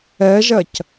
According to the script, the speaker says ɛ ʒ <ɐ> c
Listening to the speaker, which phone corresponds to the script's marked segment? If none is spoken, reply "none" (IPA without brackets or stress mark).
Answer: ɐ